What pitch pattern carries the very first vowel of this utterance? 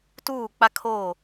falling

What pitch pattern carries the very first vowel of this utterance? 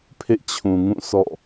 falling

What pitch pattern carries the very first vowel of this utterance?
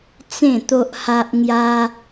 falling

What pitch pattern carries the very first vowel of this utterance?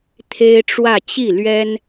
high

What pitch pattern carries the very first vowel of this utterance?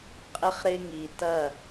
high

